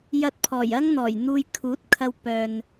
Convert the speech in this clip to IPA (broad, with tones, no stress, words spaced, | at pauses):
jɐ˧t̚pʰɔː˨˩jɐ˥ŋn̪ɔː˨˩j n̪uː˧jkʰuː˨˥t̚ kʰɐ˧w pœː˨n